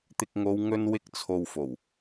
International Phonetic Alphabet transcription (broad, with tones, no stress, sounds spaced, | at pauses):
t̪ ɪ˨ k̚ ŋ o˨˧ w ŋ ɵ˧ n w ɪ˧ k̚ t͡sʰ o˨ w f o˨˩ w